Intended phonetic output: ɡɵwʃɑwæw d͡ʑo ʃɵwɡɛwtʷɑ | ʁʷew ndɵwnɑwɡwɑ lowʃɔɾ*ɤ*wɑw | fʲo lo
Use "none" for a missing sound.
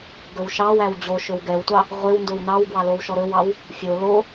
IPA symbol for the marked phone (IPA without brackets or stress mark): ɵ